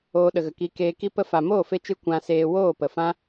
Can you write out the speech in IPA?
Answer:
oː˧ ɗ ə˨ ɣ ə˨ k i˧ k eː˧ k i˧ p ə˧ f a˨ m oː˦˨ f e˦ t͡ʃ ɨ˦ kʷ ã˧ s eː˧ w oː˦˨ p ə˨ f ã˦

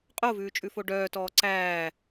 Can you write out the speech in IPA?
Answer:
qʼ o v ʉː t͡ʃʼ ʉ f o ɖ œː t ɔː ǀ æː

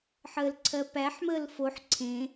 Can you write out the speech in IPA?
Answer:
ħ əː l ǀʰ ɜ p æ ħ m əː l f o ħ ǀʰ ẽ

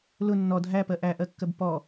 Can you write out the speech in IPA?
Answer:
l ʊ nː ɔ dʱ æ p ɜ ʔ æ ʔ ɜ kː ɜ b p ɔ

